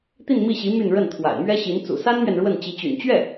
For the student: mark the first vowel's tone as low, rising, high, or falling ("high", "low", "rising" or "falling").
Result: falling